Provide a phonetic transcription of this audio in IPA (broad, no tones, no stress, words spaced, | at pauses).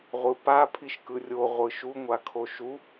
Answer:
ʁʷɯpa pʰiʃkɯrʲo ʁʷɯʃu ŋʷakʰoʃu